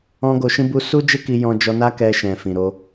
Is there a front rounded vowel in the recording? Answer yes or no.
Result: no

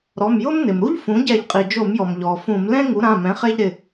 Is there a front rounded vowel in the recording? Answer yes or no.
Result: no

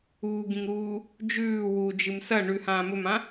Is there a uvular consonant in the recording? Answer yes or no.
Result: no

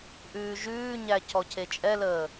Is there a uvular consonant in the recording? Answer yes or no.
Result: no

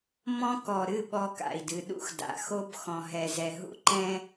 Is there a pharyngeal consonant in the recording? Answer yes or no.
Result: no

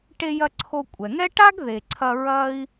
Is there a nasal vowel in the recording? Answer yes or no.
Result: no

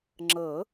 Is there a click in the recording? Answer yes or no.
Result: yes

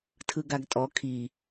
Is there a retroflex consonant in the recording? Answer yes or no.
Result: no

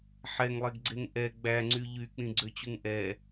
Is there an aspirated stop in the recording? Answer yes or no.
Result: no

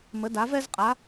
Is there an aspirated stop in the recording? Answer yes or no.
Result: no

